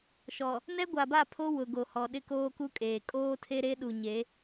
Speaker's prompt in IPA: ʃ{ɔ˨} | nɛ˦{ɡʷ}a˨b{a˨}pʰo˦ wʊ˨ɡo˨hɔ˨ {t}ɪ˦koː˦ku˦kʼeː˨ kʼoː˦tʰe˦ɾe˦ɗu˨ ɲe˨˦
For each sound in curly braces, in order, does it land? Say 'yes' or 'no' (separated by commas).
yes, yes, no, no